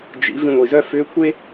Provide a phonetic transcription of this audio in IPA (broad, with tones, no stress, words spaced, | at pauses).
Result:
d͡ʒḭ˩˧ vĩ˧ŋʷi˩zœ˥ fʏː˧˥kʷʰe˥